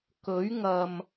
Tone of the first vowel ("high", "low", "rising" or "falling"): rising